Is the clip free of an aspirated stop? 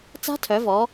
no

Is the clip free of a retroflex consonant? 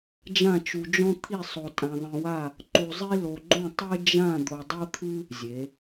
yes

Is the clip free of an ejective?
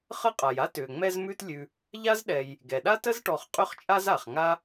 no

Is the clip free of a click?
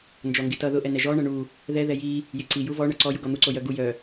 no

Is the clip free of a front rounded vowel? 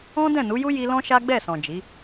yes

